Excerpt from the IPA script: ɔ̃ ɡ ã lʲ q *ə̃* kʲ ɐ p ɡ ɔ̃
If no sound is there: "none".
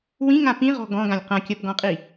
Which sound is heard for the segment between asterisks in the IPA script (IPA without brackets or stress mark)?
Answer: ɐ̃